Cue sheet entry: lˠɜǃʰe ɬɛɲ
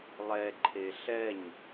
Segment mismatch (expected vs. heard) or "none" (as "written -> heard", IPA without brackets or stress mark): ɜ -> ɛ